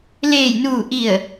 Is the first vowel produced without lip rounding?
yes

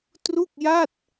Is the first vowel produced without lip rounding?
no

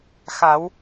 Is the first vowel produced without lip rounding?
yes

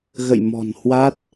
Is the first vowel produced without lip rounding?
yes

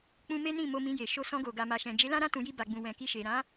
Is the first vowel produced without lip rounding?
no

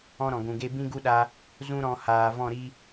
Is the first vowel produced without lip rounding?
no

